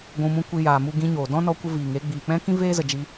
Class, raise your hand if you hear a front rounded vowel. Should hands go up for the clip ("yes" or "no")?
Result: no